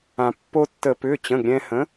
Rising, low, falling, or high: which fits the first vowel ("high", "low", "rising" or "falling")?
low